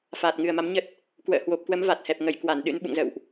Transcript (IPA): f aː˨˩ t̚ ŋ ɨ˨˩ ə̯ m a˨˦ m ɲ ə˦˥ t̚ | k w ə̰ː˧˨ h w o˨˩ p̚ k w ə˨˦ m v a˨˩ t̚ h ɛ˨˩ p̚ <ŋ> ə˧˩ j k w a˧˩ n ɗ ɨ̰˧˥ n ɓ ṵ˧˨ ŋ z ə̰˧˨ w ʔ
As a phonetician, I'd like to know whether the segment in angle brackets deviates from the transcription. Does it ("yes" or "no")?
no